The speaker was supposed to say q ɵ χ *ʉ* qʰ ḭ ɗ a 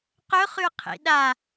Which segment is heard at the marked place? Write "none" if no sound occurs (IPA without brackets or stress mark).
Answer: ʉ